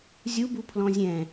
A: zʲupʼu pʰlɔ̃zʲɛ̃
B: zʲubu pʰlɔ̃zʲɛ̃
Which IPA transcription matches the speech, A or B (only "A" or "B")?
B